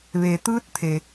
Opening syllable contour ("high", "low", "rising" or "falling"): low